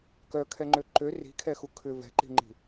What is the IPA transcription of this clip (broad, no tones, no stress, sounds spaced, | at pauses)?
k œ kʰ ɛ ŋ͡ǃ ø ǃ ø r i̤ kʰ ɛ x u kʰ ʏ v ɛ̤ ǃ i̤ ŋ͡ǃ i̤